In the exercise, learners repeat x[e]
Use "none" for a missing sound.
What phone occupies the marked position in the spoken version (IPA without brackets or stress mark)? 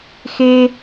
e